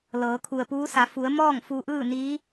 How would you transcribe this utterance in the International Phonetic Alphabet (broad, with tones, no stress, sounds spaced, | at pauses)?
l ɤː˩˧ kʰ u˩ ə̯ p uː˧˥ s a˩˧ f u˩˧ ə̯ m ɔː˥˨ ŋ f u˧ ʔ ɯː˥˨ n iː˧˥